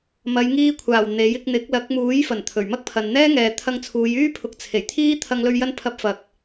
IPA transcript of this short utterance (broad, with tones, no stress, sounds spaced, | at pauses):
m ɐ˨˧ j ŋ iː˧ kʷʰ aː˨˩ w n̪ e˨˥ j ɪ˧ k̚ n̪ ɪ˨˥ k̚ l ɐ˨˥ k̚ m uː˨˥ j f ɐ˨˩ n t̪ʰ ɵ˨˩ ɥ m ɐ˥ k̚ pʰ ɐ˨ n n̪ ɛː˥ ŋ ɛː˨ t̪ʰ ɐ˧ ŋ t͡sʰ uː˨˧ j yː˥ pʰ ʊ˨˥ k̚ t͡sʰ e˨˩ j t̪ʰ iː˥ t̪ʰ ɐ˧ ŋ l ɵ˧ ɥ j ɐ˧ n pʰ ɐ˨˥ p̚ f ɐ˨ k̚